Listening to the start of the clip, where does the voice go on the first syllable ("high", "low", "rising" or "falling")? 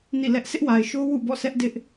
falling